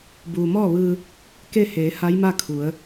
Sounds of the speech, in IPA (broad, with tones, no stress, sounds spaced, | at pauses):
b uː˩ m ɔː˥˨ ʋ ɯː˧ | k e˥˨ h eː˩˧ h a˧˥ j m a˥˨ kʰ u˩˧ ə̯